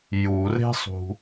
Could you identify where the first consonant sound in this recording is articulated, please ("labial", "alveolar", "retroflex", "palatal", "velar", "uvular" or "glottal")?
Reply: palatal